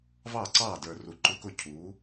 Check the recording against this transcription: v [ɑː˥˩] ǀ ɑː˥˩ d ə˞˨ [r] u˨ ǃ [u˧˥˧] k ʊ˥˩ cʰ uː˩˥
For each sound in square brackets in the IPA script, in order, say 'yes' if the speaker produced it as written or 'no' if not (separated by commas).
yes, yes, yes